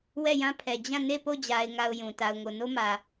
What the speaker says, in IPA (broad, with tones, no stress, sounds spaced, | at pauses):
w ɛ˦˨ j ã˦ pʰ ɛ˨ d͡ʑ ã˦˨ n e˦˨ p o˦˨ d͡ʑ a˨ ɪ̯ ŋ a˨ ʊ̯ j ũ˨ t a˨ ʊ̯ ŋ o˨ n o˦ m ä˨